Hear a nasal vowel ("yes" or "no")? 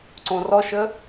yes